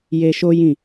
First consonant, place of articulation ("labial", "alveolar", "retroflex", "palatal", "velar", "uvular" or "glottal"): palatal